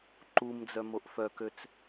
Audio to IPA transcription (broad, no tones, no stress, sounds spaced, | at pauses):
ǃ u m d͡z œ m o ʔ f œ k ø t͡s